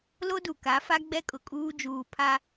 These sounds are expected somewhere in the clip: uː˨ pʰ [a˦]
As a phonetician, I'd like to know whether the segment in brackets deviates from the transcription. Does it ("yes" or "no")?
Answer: no